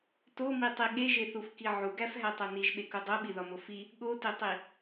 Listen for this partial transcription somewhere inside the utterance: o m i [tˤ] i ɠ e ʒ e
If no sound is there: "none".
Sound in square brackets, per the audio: tˤ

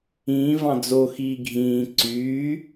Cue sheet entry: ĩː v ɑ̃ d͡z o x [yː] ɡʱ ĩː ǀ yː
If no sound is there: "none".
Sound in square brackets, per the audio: iː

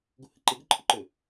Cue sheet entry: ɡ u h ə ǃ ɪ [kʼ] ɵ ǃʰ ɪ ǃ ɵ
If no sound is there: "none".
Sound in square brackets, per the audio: ɡ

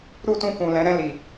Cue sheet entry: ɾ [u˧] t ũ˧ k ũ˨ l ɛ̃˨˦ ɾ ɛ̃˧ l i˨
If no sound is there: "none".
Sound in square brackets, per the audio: u˦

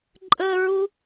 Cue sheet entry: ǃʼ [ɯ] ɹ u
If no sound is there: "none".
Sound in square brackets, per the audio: ə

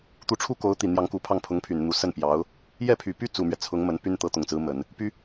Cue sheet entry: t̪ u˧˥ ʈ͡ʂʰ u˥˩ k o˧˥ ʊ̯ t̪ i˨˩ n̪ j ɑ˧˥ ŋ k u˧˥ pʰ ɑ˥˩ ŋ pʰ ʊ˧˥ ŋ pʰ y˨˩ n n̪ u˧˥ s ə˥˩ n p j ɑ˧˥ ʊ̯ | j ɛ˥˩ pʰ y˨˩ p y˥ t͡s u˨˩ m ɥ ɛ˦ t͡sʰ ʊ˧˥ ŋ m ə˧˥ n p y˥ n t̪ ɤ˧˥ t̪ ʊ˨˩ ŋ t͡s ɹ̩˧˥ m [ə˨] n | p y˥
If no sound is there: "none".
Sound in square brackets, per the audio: ə˨˩˦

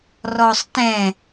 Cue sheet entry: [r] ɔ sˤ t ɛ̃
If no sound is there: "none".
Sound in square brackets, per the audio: r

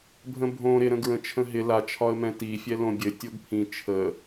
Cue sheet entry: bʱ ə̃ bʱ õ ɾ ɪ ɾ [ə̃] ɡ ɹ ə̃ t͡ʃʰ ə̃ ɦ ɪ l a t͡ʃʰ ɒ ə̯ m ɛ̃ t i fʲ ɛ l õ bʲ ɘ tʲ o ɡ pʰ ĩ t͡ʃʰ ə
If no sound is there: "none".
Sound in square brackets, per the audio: ə̃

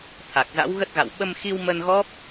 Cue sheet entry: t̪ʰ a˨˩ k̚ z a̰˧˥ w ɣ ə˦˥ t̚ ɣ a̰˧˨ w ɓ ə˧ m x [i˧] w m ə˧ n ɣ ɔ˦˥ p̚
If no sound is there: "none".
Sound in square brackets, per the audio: i˧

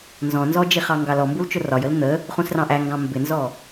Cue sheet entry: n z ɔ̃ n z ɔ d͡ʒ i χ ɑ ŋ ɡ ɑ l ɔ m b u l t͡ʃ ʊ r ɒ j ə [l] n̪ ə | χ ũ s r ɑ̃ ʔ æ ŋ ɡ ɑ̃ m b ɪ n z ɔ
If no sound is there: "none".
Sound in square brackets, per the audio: l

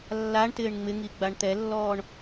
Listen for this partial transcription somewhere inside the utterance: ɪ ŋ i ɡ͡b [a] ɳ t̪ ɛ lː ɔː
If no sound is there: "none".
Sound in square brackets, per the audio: a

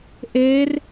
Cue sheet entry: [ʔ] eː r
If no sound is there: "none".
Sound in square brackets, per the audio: ʔ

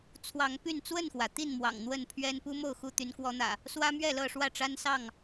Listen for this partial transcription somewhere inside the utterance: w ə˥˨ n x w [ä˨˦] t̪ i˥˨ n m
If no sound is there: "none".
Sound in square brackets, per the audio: ä˩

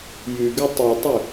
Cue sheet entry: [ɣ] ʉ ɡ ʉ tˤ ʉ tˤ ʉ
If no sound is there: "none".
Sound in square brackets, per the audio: j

